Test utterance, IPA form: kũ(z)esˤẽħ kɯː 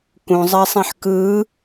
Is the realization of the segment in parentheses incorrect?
yes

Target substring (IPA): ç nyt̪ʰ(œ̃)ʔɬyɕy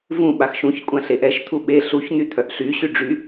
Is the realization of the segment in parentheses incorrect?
yes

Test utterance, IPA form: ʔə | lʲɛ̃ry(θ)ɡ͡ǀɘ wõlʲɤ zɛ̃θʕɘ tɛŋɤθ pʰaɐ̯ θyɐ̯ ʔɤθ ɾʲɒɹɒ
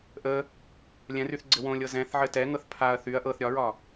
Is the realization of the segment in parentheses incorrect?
no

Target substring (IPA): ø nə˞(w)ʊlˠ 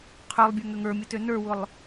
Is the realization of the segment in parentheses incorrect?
no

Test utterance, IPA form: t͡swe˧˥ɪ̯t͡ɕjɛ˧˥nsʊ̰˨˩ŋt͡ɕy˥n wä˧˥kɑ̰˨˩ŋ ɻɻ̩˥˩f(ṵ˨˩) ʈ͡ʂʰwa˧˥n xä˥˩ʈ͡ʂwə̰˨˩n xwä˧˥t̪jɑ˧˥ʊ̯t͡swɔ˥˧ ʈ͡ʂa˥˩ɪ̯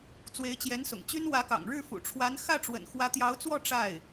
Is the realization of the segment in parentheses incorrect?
no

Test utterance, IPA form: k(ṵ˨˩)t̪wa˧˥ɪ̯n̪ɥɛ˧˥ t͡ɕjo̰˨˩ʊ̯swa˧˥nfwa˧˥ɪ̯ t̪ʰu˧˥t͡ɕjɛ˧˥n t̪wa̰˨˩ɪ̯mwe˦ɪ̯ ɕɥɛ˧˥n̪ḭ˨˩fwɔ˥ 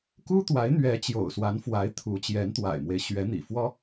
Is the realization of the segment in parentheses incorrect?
yes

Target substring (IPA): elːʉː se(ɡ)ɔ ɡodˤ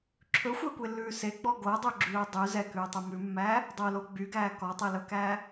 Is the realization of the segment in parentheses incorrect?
yes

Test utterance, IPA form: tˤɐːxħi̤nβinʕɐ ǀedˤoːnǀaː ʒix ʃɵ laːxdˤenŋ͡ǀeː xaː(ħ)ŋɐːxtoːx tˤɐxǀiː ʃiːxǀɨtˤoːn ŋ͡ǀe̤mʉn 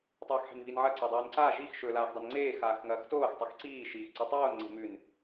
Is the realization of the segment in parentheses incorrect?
yes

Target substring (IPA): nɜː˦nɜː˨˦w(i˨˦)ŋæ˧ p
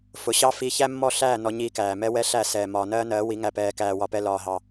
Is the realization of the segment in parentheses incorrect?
no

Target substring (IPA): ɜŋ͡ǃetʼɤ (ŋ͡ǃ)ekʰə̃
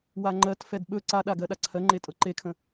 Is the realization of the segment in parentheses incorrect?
yes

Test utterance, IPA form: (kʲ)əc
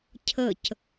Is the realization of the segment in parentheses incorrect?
yes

